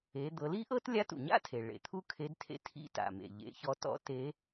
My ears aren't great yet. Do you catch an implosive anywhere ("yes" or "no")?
no